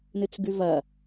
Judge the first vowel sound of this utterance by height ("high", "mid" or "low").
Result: high